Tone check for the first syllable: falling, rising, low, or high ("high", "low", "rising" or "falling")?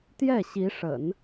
falling